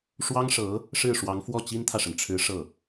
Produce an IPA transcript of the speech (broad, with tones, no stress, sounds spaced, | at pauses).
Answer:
ʂ w ɑ˥ ŋ ʂ ɤ˧˥ | ʂ ɻ̩˥˩ ʂ w ɑ˧˥ ŋ f w ɔ˥˩ t͡ɕ i˥ n t̪ʰ ä˨ ʂ ə˩ n ʈ͡ʂʰ ɻ̩˧˥ ʂ ɤ˥˩